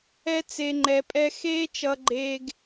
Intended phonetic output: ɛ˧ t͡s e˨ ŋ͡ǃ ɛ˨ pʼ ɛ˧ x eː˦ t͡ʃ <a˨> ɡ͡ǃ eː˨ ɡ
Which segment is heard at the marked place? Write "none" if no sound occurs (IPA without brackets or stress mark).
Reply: ʌ˨